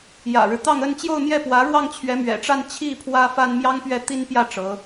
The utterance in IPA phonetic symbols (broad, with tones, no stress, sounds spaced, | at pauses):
j ä̰˨˩ ɻ ɻ̩˦ t̪ ɑ˥˧ ŋ ə˥˧ n t͡ɕ j o˥˧ ʊ̯ n̪ j ɛ˥˩ p w ä˧˥ ɻ w ɑ˥˩ ŋ t͡ɕʰ ɥ ɛ˧˥ m ɥ ɛ̰˨˩ ʈ͡ʂ a˥˧ n t͡ɕʰ i˥˩ pʰ w ä˥ f a˥ n m j ɑ˥ ŋ p ɥ ɛ˥˩ t̪ i˥ n p j ä˥˩ ʈ͡ʂ ɤ˧˥